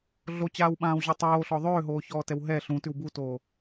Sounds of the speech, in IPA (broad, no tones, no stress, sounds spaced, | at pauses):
ɮ o t͡ɕ aː w ɓ ãː w ʑ o tˤ oː ɬ ɔ ðˤ øː ɦ oː ç ɔː t ɛ w ɦ ɛ ɬ ũ t ʉ w b u t oː